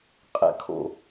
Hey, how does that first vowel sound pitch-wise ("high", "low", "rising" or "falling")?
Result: low